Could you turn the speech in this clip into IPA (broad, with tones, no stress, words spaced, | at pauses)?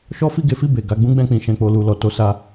ʃɔ˦fi˦˨ɡe˨˦fi˦˨ be˨ ɡa˧ɡ͡bũ˦ɡ͡bɛ̃˧k͡pĩ˨ ʃɛ̃˨k͡po˨lu˨ lɔ˨to˧ sa˧